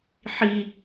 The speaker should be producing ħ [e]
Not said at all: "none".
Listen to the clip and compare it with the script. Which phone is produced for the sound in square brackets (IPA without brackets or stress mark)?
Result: i